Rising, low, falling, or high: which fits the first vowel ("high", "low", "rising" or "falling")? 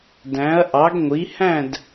rising